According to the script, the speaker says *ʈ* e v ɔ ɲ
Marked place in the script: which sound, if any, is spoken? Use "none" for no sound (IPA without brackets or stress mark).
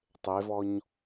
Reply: tˤ